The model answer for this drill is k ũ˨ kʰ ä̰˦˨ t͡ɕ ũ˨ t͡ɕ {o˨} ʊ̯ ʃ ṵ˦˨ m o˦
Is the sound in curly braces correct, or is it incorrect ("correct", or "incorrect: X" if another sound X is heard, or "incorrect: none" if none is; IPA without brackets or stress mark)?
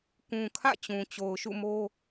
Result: correct